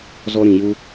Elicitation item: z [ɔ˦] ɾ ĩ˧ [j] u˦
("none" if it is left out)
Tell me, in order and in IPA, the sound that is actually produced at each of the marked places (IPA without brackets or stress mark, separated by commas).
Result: ɔ˦, j